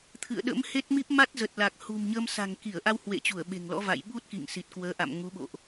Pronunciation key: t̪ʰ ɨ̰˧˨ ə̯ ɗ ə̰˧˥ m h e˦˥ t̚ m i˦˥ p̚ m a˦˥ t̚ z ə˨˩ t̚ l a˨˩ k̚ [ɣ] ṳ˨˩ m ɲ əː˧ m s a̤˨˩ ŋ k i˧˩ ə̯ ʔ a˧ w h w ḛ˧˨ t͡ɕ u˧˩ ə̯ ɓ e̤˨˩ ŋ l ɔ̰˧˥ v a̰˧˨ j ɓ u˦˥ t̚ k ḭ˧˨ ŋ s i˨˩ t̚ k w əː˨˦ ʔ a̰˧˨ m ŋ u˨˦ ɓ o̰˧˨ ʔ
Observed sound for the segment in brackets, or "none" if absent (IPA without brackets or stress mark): h